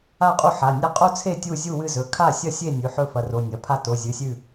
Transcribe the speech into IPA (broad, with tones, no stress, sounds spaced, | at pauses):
a˥˨ qʼ u˥˨ ħ a˩˧˩ nʲ a˥˨ qʼ o˥˨ t͡sʰ e˥˨ tʲ u˥˨ zʲ u˥˨ w ɨ˥˨ z ɵ˩˧˩ kʰ a˥˨ sʲ ɐ˥˨ sʲ e˥˨ nʲ ʉ˩˧˩ ħ ɵ˥˨ f ɐ˩˧˩ r o˩˧˩ nʲ ɐ˩˧˩ pʰ a˥˨ t o˩˧˩ zʲ ɨ˩˧˩ sʲ ʉ˥˨